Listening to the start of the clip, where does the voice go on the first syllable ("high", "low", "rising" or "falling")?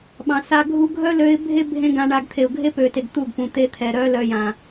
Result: low